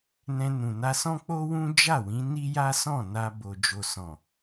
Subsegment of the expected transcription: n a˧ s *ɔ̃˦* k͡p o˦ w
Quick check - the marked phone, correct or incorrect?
correct